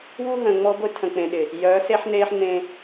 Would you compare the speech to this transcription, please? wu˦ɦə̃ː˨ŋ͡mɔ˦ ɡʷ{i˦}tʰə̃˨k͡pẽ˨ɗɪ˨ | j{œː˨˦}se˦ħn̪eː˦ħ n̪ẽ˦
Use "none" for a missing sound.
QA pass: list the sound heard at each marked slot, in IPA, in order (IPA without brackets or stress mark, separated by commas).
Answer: ɪ˦, œː˨˦